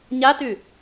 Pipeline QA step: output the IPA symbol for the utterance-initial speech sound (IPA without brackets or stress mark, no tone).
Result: ɲ